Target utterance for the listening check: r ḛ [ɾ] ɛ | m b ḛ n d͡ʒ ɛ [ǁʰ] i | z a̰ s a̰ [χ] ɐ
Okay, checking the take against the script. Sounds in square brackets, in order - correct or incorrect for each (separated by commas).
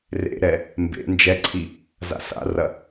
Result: correct, incorrect, incorrect